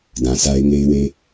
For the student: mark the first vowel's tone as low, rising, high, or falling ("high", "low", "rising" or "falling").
low